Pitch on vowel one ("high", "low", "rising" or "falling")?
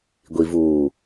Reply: low